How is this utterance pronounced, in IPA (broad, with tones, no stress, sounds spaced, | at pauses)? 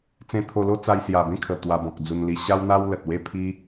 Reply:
t͡s ẽ˧ t̪ʰ o˧ l o˦ t͡s a˧ j s j a˨˩ b ẽ˥˧ kʰ ə˨˩ t̪ w a˧ b ɔ̃˨ k̚ d͡z u˧ n l i˧ ɕ a˦ w n̪ a˦ w l ə˨ t̚ w e˥˧ pʰ i˦